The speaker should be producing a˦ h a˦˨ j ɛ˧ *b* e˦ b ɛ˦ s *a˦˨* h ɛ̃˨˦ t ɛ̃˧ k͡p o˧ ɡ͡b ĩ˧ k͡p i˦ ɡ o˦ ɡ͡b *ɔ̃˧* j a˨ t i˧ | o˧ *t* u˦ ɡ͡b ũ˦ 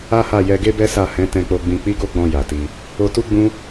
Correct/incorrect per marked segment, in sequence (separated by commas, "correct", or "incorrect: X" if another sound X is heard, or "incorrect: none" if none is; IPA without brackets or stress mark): incorrect: ɡ, correct, correct, correct